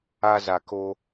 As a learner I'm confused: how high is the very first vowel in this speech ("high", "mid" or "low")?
low